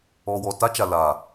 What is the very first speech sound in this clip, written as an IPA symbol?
ɔ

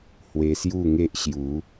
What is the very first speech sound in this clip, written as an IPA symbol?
h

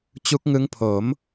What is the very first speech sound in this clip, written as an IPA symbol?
t͡ɕ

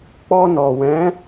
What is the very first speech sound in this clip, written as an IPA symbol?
k͡p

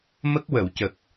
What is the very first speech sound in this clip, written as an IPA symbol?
m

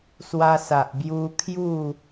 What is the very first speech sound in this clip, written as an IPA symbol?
s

